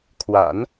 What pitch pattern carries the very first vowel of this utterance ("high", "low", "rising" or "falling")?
low